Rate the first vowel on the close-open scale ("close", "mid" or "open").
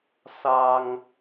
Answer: open